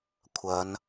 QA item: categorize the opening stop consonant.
aspirated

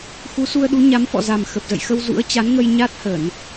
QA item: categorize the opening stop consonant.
implosive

